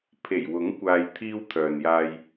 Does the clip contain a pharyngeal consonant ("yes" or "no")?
no